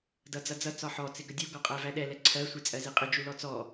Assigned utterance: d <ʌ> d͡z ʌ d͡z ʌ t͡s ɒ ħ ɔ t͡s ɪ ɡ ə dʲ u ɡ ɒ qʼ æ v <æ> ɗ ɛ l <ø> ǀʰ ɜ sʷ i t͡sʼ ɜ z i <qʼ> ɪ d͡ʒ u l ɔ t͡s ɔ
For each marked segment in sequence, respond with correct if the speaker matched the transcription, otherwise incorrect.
correct, correct, incorrect: ɛ, correct

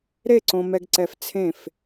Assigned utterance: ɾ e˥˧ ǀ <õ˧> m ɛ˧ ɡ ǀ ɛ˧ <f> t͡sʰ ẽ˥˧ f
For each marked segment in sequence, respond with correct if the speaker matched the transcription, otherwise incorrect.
correct, correct

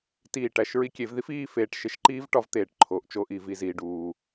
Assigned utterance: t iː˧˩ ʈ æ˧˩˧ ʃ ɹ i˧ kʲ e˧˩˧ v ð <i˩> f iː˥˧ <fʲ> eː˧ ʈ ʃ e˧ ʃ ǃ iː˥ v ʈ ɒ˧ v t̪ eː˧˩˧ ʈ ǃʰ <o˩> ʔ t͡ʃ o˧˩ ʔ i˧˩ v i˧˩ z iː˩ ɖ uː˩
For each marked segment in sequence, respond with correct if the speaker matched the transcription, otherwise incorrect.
incorrect: i˥, incorrect: f, correct

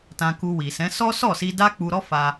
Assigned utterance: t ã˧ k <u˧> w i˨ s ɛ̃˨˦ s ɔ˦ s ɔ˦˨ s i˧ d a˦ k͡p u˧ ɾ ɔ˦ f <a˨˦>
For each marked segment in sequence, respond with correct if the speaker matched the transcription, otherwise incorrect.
correct, incorrect: a˧

